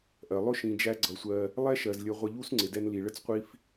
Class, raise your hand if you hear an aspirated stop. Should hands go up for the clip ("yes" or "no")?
no